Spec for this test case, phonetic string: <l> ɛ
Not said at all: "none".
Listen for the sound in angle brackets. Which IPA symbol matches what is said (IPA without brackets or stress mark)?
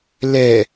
l